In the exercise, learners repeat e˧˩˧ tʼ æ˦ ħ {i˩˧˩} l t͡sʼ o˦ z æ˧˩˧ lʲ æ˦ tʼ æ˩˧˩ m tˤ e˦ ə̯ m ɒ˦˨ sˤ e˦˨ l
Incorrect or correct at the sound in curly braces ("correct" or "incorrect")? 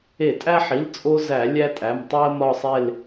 correct